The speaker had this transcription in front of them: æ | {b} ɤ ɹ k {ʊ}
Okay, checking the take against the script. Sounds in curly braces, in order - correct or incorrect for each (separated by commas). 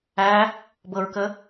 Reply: correct, incorrect